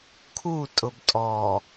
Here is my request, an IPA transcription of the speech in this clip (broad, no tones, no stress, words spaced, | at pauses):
kʰu tʼʊbtʼɔ